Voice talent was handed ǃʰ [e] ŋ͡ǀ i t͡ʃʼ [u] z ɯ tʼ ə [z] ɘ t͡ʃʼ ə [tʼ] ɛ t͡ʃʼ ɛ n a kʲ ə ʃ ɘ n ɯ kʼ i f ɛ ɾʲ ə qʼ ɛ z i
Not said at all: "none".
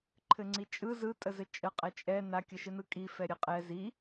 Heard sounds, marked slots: ɘ, ɯ, z, qʼ

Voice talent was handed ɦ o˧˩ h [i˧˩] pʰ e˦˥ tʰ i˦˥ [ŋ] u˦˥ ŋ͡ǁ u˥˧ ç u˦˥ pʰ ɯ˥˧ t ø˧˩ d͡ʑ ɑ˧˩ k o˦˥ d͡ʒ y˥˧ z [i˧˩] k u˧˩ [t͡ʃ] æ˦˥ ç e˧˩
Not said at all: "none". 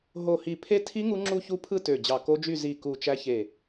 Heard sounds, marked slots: i˧˩, ŋ, i˧˩, t͡ʃ

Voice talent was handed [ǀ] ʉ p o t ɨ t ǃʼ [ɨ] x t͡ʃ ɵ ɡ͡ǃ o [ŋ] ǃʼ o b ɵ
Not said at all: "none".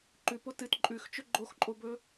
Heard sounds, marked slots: ǃ, ʉ, x

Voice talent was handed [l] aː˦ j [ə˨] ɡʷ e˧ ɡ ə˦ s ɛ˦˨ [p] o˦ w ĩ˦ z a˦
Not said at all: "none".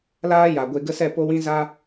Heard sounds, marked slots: l, a˨, p

